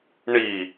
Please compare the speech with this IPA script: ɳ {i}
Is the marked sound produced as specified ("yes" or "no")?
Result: yes